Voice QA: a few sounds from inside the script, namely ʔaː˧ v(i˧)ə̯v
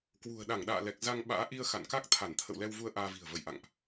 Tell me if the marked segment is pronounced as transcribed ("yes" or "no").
no